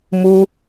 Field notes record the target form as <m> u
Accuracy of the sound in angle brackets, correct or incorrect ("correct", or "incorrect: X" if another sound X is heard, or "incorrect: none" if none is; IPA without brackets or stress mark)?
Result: correct